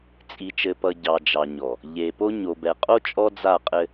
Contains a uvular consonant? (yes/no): yes